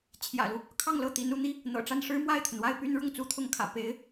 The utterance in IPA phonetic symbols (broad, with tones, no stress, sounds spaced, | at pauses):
t͡ɕʰ j ä̰˨˩ l u˦ | kʰ ɑ˥˧ ŋ l ɤ˥˩ t̪ i˧˥ n u˥˩ n̪ i˥ | n̪ ɤ̰˨˩ ʈ͡ʂ a˥˩ n ʂ ɻ̩˥ m w a˥˩ ɪ̯ t̪ʰ ə˩ n w a˥˩ ɪ̯ p y˥ n ɻ ʊ˥˩ ŋ t͡s u˥ t̪ʰ ʊ˥˩ ŋ kʰ ä̰˨˩ p e˧˥ ɪ̯